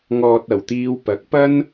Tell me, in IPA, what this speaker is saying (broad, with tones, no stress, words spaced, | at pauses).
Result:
ŋɔː˨t̚ɐ˨˩wt̪iː˨w pɐ˨˥k̚pɐ˥n